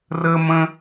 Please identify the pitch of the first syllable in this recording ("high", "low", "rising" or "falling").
high